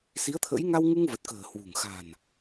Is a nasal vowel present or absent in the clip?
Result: absent